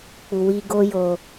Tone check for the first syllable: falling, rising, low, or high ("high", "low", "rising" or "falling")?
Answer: low